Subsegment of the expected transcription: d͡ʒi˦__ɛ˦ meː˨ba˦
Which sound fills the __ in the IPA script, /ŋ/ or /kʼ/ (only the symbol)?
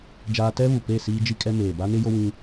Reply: kʼ